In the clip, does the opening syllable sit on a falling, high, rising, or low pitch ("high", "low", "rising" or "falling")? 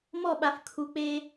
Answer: falling